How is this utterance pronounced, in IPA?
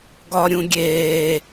ɡɒɾʲũɡʲeː

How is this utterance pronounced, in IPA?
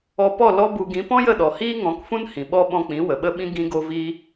ɔ˧pɔ˦˨ lɔ˦bu˧ ɡĩ˨˦pɔ̃˦jə˦˨ɗɔ˨ hiː˦ŋɔ̃˨˦kfũ˦n hĩ˨ ɓɔ˦ ɓɔ̃˧k͡pĩ˨˦ wə˨ɓə˦ɓĩ˦ ɡĩ˦ɡo˦ viː˦

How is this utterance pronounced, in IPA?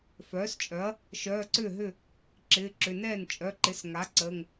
fœː˩˥st͡ʃʼœ˩˥ɐ̯ | ʃœː˩˧˩ǀʏː˥˩ɦʏ˥˩ | ǁɪː˩˧˩ǁʏ˩˧˩ nɛː˥˩n t͡ʃʼœ˩˧˩ǃɪ˩˥s ŋa˩˥ ǀəː˩˧˩ŋ

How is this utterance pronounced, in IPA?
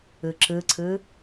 ɯǁɯǀʰɯ

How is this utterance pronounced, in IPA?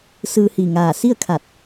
sɯː˧hi˧˩ŋaː˧˩ si˥˨ə̯kʰa˧˩t̚

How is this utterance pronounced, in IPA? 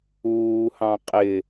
uːhɑ̃ qʼɪ

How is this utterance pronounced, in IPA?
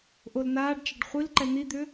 ʔolnaːɖt͡ʃaɖ χʷil ǃɛn̪id̪ʏ

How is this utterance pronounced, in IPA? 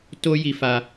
to˦ji˧fa˧

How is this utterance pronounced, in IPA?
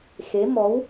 xe˧˥mɔ˧˥w

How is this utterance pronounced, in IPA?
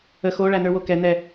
ə xo ɭænə˞wokɛ n̪ɛ

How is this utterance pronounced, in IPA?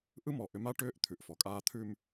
ʔɯ˦mɔ˨ʔʏ˨˦ma˦ ʈʏː˦ʔt̪ʰʉ˨ʔfɔ˨kʼaː˦ t̪ʰʉ˦m

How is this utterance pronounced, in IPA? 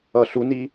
ʌɬuni

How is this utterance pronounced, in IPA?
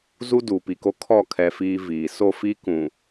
zu˦duː˨pi˨ko˦ kʰɔ˦˨kʰɛ˨ fiː˦viː˨ so˦˨fi˦kũ˨

